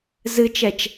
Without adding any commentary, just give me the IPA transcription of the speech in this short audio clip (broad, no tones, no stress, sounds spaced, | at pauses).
z ɨ t͡ʃ ɛ t͡ʃ